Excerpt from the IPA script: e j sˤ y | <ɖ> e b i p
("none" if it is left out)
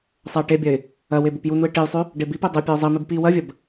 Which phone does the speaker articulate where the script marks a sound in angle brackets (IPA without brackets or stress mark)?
ɖ